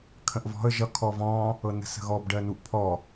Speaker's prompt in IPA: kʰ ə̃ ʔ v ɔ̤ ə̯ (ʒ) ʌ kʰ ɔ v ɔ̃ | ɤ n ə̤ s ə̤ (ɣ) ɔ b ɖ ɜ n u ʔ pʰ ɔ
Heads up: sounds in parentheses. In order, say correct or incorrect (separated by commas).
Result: correct, correct